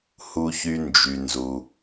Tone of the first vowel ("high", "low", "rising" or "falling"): high